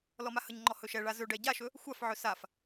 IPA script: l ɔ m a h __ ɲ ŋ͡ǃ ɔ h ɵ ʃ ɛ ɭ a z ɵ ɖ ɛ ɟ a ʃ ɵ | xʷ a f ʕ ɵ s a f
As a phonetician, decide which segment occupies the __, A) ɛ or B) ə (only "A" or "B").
B